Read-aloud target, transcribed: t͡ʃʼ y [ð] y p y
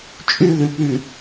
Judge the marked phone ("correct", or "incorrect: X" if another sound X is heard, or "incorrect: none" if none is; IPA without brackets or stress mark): correct